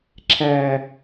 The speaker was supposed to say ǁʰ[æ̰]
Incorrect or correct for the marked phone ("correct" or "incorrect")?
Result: incorrect